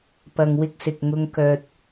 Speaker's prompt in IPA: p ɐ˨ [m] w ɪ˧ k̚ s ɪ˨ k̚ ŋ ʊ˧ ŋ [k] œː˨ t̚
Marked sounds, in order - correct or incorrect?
incorrect: ŋ, correct

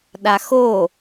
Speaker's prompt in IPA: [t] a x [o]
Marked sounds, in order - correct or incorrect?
incorrect: ɗ, correct

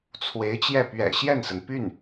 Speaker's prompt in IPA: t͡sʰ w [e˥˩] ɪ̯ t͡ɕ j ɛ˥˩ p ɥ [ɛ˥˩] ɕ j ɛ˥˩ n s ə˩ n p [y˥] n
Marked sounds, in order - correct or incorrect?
incorrect: e˧˥, incorrect: ɛ̰˨˩, incorrect: y˥˩

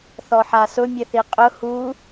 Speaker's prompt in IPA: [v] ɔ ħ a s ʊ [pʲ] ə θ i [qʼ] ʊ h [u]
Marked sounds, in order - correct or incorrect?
incorrect: θ, incorrect: mʲ, correct, correct

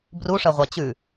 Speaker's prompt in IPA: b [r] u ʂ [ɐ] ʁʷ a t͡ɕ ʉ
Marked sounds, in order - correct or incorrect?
correct, correct

